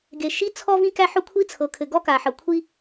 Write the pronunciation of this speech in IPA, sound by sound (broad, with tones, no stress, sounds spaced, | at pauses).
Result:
ɡ e˩ ʃ i˥ t͡sʰ ɔ˥ v ĩ˥ k æ˥ ħ ʊ˥ kʷʰ i˥ t͡sʰ ɤ˩ kʰ ɘ˩ ɡ ɔ˥ k a˩ ħ ɤ˩ kʷʰ i˥